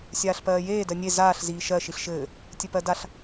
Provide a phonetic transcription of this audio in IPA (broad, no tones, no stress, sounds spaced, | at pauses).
sʲ aː ɬ p ɜː j eː d ɜ nʲ e z aː ɬ z iː ʃ ɜ ʃ i ɬ ʃ ɘː | tʲ ɘ p ɜ d a ɬ